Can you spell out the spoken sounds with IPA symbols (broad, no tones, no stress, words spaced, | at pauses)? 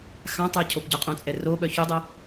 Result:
xãtˤə˞ cʰopɟœqʼõt͡sʼɛ roɓœ çudˤɛ